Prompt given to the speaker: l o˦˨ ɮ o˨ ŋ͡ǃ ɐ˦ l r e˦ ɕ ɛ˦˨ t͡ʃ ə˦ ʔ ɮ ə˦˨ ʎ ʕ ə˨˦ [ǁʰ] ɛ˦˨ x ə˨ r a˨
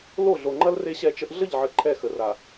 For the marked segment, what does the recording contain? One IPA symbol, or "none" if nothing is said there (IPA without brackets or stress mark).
ǃʰ